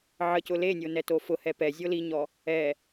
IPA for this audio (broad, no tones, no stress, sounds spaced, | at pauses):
ʕ ə c ʊ l e nʲ o n ɛ t o f ʊ h ɛ p ɛ zʲ o l i ɲ ɔ | ɛ